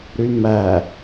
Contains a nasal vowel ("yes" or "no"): no